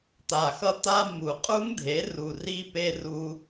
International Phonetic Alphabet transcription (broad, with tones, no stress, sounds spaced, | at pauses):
t̪ a˨˩ x ʌ˧ t̪ a˧ m u˨˩ qʼ u˦˥ ŋ dʱ e˩˥ r u˨˩ r i˧ p e˧ r u˧